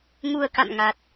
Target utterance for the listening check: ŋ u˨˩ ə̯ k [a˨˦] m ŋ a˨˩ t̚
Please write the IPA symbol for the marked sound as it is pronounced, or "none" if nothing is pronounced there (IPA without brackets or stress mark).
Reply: a̰˧˨